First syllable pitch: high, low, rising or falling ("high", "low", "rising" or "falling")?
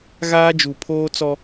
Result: high